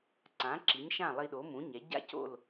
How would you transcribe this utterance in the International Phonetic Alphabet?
ǀ ã˩˥ ǁ i˩˥ ɲ ʃ ã˥˩ lˠ i˧ ɗ o˩˥ m ũ˩˥ ɲ ɛ˩˥ ɟ a̰˥ c o̰˥˩ l

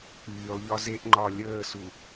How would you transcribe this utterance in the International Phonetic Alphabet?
k͡p yː lˠ ʎ ɒ z e ʔ ŋ͡ǃ ɒ lʲ əː s u

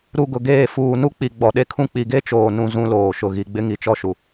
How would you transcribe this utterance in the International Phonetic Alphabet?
ɾ u˨ ɡ ʊ˨ ɡ eː˦˨ f uː˨ n u˦ k͡p i˨ ɡ͡b ɔ˨ ɗ e˦ kʰ ũ˦ k͡p i˨ ɡ e˦ t͡ʃ oː˨ n ũ˦ z ũ˦ l oː˨ ʃ ʊ˨ ɣ i˨ ɡ͡b ɪ˦ ŋ i˨ t͡ʃ ɔ˦ ʃ u˨

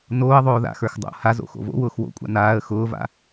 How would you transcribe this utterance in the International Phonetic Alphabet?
n oː ə̯ ðˤ oː ð a̰ x ə˞ x dˤ o̰ h a z o̰ x o̰ v o̰ w ʊː x w o̰ kʷʼ a̰ n aː ə̯ x ʊː v a̰

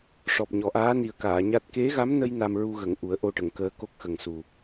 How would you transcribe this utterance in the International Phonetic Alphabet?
ʂ ɔ˨˩ p̚ ɲ ɔ˨˩˨ ʔ aː˧˥ n i˨˩ ə̯ k aː˨˩˨ ɲ a˦˥ t̚ k e˧˥ ɣ a˧˥ m n ə˧ j n a˧ m ɹ u˧ ɣ ə˨˩˨ ŋ ʔ u˨˩˦ ə̯ ʔ o˧ ʈ ə˨˩˨ ŋ k əː˧˥ k o˦˥ k̚ x ə˨˩ ŋ s u˨˩

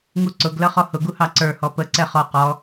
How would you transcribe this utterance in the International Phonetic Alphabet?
ŋ u ǀ ʊ ɡ l ʌ χ ɔ h ʊ ɡ u h ɑ ǀ ə˞ h ɔ p ə ǀ ɛ χ ɔ q ɔ

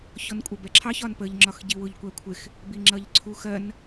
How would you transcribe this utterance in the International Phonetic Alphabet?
ç ɔ n kʷʼ ɜ b ɛ ǁʰ ɑ ç ɒ n p ə ʎ ŋ͡ǁ ɒ x ɟ i w ʊ ʎ kʷ æ kʷʰ ɪ x | b i ŋ͡ǁ ʌ ʎ ǀʰ u x ɜ n

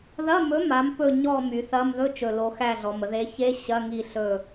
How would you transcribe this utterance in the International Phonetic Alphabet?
ð ɐ˧˥˧ m ɵ˨˥ m a˨˥ m p ɵ˦˨ ɲ ɔ˦˨ m y˩˧ θ ɐ˧˥˧ m ð ɵ˧˥˧ t͡ʃ ɵ˨˩ l o˩˧ x æ˦˨ ɮ ɔ˩˧ m ə˩˧ ð e˨˥ ç e˧˥˧ ɕ ɐ˧˥˧ ŋ i˦˨ ɬ ɵ˦˨

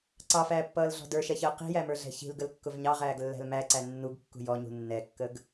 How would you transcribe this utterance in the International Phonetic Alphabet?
ǀ ɑ f æː pː ʌː l ɮ ɔ̤ d ə˞ ʃ ɛ ç əː q i̤ j æ m ə˞ ɮ ɛ̤ ç i̤ l ɡ ə l kː ʊ v ɲ ɑ ʁ æː ɡ lː æ̤ l m æ ǀ æ nː u ɡ kː ṳ j ɔ ɲ ṳ nː ɛ kː ə ɡ

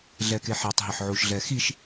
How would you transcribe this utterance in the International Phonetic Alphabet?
ɮ ɛ k e ħ e tˤ ɦ ɪ ħ ʕ u ʃ ɮ ɛ x i ʃ

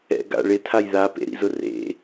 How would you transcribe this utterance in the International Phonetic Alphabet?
ɛ̰ ɡ a̰ ɭ ɪ tʰ a j ð a p ḛ ɾ ḭ z ʊ r ḛ

